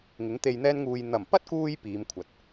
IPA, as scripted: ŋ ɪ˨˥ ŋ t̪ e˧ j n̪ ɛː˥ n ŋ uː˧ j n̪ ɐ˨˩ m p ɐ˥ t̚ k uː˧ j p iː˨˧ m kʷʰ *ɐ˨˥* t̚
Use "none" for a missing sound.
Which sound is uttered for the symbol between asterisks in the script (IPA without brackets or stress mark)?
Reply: ɐ˨˥